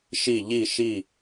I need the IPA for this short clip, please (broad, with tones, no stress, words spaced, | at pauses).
ʃi˧˩ʎi˧˩ ʃi˧˩